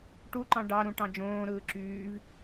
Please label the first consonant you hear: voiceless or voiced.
voiceless